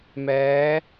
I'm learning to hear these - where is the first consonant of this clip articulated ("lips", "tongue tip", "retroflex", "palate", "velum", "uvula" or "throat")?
lips